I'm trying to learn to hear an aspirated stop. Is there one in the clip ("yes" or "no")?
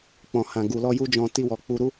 no